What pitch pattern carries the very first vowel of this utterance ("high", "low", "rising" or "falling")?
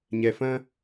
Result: low